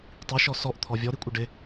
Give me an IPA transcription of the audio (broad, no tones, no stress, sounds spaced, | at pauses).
tˤ i ʃ ɔ s ɔ ʔ t̪ʰ ɔ vʲ ɔ ɾ i kʷʼ ə ɖ ɪ